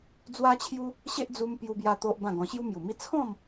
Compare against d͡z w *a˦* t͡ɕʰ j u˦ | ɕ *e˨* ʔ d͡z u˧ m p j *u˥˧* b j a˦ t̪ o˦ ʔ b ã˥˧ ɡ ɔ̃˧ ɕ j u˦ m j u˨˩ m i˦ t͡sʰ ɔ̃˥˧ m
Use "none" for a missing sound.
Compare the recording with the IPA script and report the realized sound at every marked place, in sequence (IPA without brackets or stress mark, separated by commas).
a˦, e˦, u˦